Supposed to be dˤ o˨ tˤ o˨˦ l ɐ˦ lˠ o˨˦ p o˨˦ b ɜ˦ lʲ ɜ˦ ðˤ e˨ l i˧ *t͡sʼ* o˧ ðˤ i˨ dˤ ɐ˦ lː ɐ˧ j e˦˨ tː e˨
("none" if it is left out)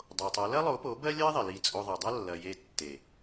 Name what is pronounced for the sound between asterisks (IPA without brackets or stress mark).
t͡sʼ